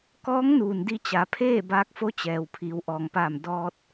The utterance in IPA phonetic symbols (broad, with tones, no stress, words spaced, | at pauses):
kɔː˧˥ŋnuː˩n di˧t͡ɕa˩˧pʰeː˥˨ baː˧˥k̚fo˧˥t͡ɕɛː˩w pʰiː˩˧wʔɔː˩ŋpaː˧˩m dɔː˧t̚